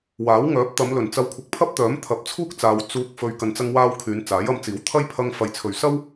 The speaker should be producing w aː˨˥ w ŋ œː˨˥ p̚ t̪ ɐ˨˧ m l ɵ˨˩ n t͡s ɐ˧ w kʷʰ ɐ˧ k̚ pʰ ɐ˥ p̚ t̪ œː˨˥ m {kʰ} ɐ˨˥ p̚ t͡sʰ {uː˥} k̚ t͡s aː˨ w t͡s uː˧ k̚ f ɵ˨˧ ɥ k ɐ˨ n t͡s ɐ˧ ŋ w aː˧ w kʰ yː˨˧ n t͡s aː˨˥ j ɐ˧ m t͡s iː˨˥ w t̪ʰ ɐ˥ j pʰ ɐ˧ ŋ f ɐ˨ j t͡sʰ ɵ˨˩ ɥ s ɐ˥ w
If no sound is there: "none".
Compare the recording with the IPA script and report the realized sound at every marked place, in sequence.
t̪ʰ, uː˥

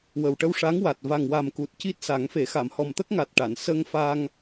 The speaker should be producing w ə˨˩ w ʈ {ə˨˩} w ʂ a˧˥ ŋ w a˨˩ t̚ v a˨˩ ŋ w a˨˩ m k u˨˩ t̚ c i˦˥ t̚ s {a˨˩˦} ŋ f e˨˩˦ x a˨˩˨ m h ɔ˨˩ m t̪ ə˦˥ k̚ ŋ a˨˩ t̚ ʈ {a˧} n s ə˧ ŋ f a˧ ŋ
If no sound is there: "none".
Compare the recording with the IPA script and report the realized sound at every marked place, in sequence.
ə˧, a˨˩˦, a˨˩˨

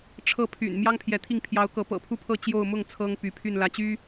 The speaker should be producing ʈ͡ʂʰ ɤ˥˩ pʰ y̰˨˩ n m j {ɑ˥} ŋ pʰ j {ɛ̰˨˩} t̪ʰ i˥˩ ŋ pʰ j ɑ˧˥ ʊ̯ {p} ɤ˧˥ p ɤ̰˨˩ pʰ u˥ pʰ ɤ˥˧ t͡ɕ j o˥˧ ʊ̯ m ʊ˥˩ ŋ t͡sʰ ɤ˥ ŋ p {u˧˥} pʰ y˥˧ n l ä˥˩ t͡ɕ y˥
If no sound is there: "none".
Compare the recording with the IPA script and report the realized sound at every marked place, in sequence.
ɑ˥, ɛ˧˥, k, y˧˥

